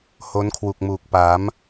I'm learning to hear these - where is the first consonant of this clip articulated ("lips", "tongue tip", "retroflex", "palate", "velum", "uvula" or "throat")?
throat